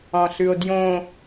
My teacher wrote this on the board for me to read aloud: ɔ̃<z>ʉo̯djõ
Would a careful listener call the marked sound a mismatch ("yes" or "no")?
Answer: yes